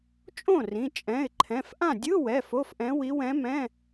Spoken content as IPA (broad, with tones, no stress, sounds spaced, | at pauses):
t͡ʃʼ õ˥˩ r ĩ˩˧˩ t͡ʃʼ ɛ̃˩˧˩ ɪ̯ ǃʰ ɛ̃˩˧˩ f ʔ ã˥˩ dʲ ɯ˧˥˧ w ɛ˩˧˩ f o˧˥˧ f ʔ ɛ̃˧˥ w i˧˥ w ɛ̃˧˥ m ɛ̃˧˥˧